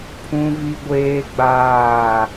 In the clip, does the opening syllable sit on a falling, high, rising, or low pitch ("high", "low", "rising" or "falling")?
high